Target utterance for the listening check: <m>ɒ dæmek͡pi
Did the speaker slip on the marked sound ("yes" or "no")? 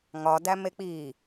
yes